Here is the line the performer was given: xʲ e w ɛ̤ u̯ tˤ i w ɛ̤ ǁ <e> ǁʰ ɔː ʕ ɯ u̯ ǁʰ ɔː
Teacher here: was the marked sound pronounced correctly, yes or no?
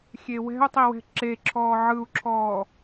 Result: yes